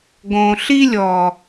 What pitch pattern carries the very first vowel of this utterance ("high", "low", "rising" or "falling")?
low